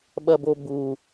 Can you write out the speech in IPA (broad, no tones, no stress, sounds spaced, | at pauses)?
ɓ ɐ b o b u